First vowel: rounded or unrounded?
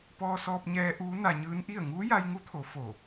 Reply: rounded